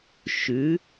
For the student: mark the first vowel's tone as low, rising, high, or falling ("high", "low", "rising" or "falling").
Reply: rising